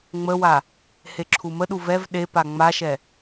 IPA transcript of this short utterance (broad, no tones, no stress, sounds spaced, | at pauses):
ŋ͡m ə w a | h e ǁʰ u m ə ɗ u v ɛ v ɗ e p a ŋ͡m a ʃ ɛ